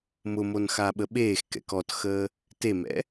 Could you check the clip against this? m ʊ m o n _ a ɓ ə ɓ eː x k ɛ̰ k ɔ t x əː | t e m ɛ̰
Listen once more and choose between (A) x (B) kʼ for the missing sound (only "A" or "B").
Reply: A